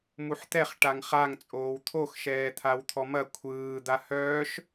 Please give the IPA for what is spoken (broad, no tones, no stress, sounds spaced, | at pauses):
m u ħ t̪ ɛ χ ʈ a ŋ χ a ŋ t͡sʼ oː w t̪ʰ o x ʃ ɛː t̪ʰ a w t̪ʰ ɔ m ɐ kʷʰ ɯː d̪ a h œː ʃ